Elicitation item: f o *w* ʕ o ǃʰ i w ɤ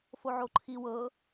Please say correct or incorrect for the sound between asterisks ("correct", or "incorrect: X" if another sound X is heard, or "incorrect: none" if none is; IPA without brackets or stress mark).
incorrect: none